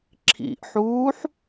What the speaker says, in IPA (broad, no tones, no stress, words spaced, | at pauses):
ǁʰḭʔħuːħ